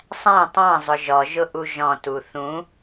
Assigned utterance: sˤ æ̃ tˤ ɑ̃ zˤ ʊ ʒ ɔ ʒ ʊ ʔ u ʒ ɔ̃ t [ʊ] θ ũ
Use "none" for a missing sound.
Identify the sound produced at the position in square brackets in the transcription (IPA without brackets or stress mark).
u